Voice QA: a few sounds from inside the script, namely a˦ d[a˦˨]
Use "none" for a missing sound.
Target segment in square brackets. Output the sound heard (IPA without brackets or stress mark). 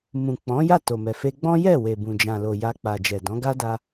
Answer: a˧